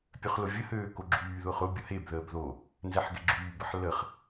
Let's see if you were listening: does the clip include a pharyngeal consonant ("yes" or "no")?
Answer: yes